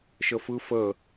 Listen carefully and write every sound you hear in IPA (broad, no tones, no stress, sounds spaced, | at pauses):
ʃ ə f ɯ f ə